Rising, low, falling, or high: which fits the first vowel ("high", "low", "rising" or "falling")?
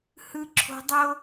high